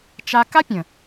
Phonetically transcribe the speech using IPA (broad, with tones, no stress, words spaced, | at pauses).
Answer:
t͡ʃa˧ ka˦pʲə̃˨